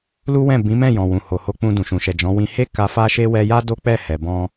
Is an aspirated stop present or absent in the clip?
absent